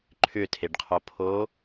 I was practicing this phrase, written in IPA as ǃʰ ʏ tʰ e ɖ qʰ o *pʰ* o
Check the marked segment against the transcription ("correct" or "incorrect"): correct